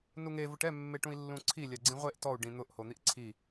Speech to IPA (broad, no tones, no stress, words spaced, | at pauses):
nuŋe vʊʈɛ mːeʈũi̯lːũǀʰi lʲaɡ͡ǀĩʁʷeʔ tɔu̯ ɖĩn̪ʊʔ hon̪iʔǀʰi